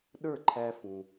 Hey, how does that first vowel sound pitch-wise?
falling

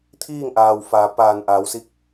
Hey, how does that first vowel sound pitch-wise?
falling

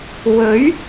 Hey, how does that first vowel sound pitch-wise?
rising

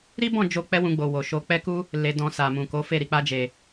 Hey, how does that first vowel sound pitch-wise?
high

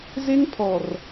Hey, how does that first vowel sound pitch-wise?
high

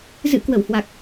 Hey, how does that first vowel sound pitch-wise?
rising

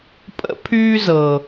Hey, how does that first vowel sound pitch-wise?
high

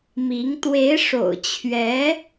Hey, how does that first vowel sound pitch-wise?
rising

